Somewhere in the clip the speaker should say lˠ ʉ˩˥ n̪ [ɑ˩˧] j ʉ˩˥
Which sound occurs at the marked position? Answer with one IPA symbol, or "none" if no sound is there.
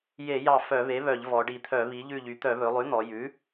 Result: ɔ˩˧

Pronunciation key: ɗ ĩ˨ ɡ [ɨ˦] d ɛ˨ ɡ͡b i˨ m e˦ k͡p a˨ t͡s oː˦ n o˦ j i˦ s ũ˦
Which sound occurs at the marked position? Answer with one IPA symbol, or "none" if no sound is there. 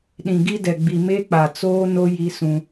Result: i˦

